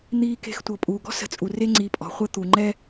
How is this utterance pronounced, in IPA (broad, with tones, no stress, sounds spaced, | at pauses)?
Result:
n̪ iː˨ k e̤˨ x tʷ ɤ˩ pʼ uː˩ ɡ ɔ̤˥ s ə̤˨ t͡sʼ u˩ r e˥ ŋ͡ǀ i˨ pʼ ɔ̤˩ χʷ ə˦ t̪ u˩ ŋ͡ǃ ɛ˥